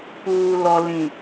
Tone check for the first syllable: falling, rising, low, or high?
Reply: low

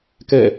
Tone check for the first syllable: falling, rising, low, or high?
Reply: falling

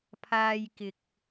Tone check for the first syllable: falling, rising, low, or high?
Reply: high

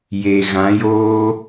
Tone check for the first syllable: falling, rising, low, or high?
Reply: low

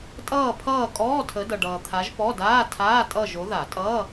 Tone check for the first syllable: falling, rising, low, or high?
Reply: falling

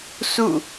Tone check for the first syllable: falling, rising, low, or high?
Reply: falling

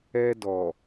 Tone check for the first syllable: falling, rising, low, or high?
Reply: high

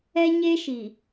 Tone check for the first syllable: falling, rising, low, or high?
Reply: high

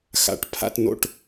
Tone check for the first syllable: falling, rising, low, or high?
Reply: low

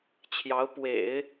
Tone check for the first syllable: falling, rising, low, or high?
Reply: rising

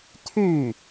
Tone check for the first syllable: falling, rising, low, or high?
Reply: falling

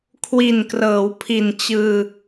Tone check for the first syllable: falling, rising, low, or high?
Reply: low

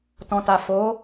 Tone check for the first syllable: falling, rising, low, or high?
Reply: low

